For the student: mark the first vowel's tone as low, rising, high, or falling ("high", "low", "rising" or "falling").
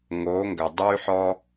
rising